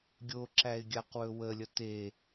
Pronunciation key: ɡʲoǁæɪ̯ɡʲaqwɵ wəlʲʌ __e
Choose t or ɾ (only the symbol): t